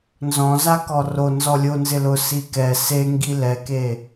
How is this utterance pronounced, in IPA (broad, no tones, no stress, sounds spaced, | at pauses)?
n z ɔ̃ z a k ɔ r o n z ɔ lʲ o n z ɪ l ʊ s i k ɛ s e ŋ ɡ i l ɛ k e